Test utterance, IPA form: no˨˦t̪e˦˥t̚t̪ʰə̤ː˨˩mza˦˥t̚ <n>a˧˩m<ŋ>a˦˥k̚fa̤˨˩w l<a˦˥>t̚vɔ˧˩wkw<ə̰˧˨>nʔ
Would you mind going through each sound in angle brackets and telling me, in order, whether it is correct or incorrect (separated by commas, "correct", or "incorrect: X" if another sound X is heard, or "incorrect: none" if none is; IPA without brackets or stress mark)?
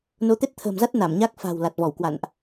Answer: correct, incorrect: ɲ, incorrect: a˨˩, incorrect: a̰˧˨